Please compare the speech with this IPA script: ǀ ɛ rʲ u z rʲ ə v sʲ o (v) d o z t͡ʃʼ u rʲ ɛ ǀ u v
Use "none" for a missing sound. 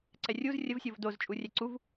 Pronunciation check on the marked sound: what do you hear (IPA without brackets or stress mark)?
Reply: v